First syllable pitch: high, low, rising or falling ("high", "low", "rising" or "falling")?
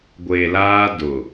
low